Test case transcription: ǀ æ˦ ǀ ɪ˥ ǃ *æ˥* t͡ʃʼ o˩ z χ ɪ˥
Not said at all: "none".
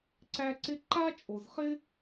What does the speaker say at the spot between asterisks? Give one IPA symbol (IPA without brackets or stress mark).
a˥